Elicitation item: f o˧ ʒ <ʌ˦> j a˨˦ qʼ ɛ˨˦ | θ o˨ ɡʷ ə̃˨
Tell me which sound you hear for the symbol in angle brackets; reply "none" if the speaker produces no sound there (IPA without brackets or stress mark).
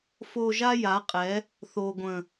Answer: a˦